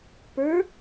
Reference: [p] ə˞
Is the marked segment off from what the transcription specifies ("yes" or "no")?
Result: no